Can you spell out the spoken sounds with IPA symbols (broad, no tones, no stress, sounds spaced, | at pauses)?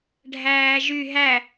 ɖʱ æː ʒ y ɦ æ